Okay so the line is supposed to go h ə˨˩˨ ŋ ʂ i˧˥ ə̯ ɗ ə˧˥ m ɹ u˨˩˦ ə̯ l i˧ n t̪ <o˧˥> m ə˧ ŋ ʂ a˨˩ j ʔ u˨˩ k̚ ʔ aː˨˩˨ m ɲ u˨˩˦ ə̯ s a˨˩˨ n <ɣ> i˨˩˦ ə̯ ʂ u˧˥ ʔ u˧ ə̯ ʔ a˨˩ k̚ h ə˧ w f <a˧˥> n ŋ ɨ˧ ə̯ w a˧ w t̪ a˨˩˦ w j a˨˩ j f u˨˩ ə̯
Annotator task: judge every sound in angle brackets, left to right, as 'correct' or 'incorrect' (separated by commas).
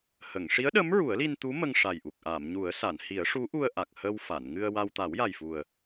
incorrect, incorrect, incorrect